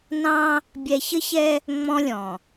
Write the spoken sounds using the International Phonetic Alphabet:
n ɑ̃˦ | bʲ ɛ˨ ç ə˦ ç ɛ˦ | ŋ͡m ɔ̃˦ lʲ ɔ̃˨

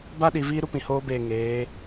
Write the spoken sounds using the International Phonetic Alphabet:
b a˦ ɗ i˨ v iː˦ ɾ u˦ p ĩ˨ h oː˦ b eː˦˨ ŋ eː˨˦

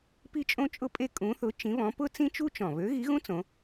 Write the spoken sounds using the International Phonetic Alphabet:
p i˥ t͡ʃʼ õ˥ t͡ʃʼ ʊ˥ pʼ e˥ kʼ ũ˧˥ θ ʊ˧˥ t͡ʃ ĩ˧˥ β ɔ̃˧˥ p ʊ˥ t͡s ĩ˥ t͡ʃ u˥ t͡ʃ ɔ̃˨˩ β ø˧˥ ɣ i˧˥ ɣ ũ˥ t͡s õ˧˥

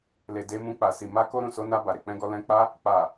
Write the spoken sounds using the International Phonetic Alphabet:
l e˨ d e˧ m ũ˧ k͡p a˨ s i˨ m a˧ k o˧ ɾ ũ˨ s o˧ n a˧ b a˨ ɾ e˨ k͡p ɛ̃˧ ɡ ɔ˧ l ɛ̃˧ k͡p a˦ | k͡p a˨

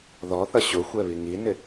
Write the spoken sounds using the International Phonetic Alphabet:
ð ɔ θ ʌ ɕ ʊ xʷ ɛ β i ŋ i n ɪ

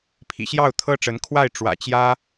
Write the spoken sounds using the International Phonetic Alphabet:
pʰ ḭ˨˩ ɕ j ɑ˥˩ ʊ̯ t̪ʰ ɤ˥ ʈ͡ʂ ə˧˥ n kʰ w a˥˩ ɪ̯ ʈ͡ʂ w ä̰˨˩ t͡ɕ j ä˥

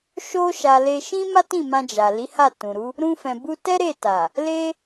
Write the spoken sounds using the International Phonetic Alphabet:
ʃ o˧ ʃ a˨ l e˧ ʃ ĩ˦ m a˦ t ĩ˦˨ m ã˧ d͡ʒ a˨ l i˨˦ h a˦˨ t ũ˨ ɾ u˨˦ | ɾ ũ˧ f ɛ̃˨ b u˧ t ɛ˦ ɾ e˦˨ t a˨ | l e˦

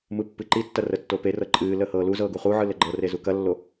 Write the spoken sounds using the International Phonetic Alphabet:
m ɯ pː ɨ ǃ i tː ɐ r ə tː o p e r ɤ ǃʼ ɨː l ə h ɤː l u z ɤː ɡ u χ u ʕ ɯ l ə ɡ͡ǃ ɤ r e z u k ɐ lː o

